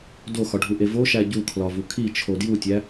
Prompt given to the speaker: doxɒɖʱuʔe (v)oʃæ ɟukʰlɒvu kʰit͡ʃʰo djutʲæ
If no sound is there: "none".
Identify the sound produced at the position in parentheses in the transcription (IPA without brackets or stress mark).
v